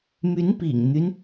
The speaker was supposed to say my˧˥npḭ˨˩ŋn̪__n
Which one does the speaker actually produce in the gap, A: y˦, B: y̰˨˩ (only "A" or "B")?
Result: A